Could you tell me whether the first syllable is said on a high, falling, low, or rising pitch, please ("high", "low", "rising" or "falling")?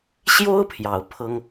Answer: high